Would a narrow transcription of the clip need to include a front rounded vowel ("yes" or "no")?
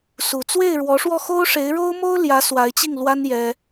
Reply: no